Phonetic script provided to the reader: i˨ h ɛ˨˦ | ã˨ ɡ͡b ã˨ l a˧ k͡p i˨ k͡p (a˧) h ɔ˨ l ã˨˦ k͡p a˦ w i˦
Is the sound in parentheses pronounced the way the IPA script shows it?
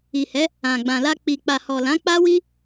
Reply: no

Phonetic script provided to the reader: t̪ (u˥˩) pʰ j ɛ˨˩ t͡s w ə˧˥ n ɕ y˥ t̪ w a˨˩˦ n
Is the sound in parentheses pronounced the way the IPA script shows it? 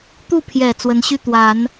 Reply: yes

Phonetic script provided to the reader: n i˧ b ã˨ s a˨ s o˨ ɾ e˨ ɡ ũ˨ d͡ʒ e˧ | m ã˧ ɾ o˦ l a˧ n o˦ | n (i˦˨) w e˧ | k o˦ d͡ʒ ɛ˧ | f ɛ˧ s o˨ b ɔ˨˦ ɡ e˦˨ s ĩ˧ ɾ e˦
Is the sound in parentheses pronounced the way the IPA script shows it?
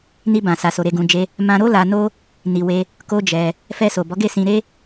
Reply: no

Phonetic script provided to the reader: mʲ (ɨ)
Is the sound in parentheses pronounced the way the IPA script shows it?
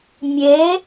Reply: no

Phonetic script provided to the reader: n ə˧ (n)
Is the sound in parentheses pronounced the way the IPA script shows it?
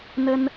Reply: yes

